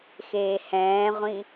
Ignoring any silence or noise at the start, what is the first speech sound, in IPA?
x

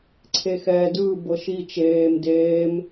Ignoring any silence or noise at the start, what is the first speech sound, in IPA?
ǀʰ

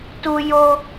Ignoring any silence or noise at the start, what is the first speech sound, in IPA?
t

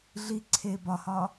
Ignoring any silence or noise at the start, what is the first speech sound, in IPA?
ɮ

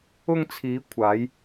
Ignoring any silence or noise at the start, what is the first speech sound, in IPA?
ʊ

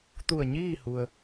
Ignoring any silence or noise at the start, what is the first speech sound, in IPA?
t̪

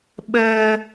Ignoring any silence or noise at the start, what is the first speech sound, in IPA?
ɓ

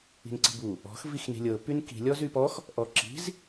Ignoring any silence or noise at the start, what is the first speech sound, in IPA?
i̤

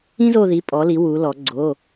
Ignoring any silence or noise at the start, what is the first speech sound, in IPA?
ĩ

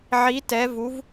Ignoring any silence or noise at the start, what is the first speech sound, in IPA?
ʕ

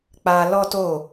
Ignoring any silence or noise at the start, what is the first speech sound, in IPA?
k͡p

